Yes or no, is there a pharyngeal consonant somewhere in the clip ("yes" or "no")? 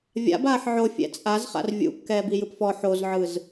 yes